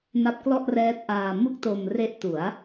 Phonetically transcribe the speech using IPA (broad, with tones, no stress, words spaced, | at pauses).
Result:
na˦˥p̚klɔ˥˩ʔrɛː˦˥t̚ʔaː˧ mu˥˩k̚to˧mre˦˥ʔ tu˩˦a̯